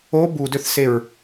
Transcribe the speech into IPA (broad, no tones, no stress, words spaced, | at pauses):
o budøθseɹ